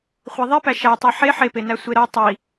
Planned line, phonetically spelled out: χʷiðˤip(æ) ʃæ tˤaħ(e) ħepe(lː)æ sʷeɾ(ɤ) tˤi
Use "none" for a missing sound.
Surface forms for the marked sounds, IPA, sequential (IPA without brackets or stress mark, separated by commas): æ, e, n, ɤ